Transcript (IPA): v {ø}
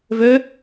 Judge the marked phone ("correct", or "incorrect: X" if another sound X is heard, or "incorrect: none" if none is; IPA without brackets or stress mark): correct